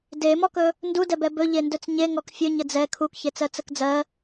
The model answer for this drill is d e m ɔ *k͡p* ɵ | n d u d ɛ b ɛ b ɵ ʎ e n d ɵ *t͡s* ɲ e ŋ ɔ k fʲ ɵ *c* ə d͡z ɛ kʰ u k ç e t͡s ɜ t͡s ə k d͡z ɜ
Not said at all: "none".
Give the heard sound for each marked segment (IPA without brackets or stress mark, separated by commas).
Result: k, t͡s, ɲ